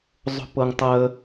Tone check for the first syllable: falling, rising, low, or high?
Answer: high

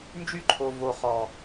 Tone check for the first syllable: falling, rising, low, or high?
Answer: high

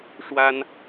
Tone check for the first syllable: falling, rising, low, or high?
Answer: high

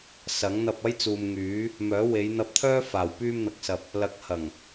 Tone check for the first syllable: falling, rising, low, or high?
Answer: rising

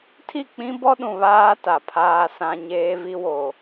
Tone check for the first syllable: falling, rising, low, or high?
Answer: falling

